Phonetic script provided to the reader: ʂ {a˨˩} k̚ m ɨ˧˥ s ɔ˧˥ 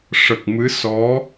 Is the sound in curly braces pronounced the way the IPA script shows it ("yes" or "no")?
no